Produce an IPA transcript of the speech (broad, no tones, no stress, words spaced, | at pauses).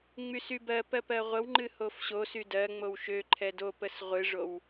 ŋ͡mysybɜpɜ pɜʁʷəwŋ͡ǃɨ hofɕosy dɜŋ͡mow ʃø ǃʰɛdopəs ʁʷɨʐow